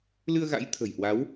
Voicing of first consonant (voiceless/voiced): voiced